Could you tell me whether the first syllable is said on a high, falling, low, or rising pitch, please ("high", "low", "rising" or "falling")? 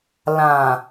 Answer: low